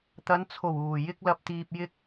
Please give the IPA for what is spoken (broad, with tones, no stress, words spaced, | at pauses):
t̪ɐ˨˧nt͡sʰo˨˩w uː˨˩ jɪ˥k̚lɐ˧p̚t̪iː˧p̚ jɪ˧k̚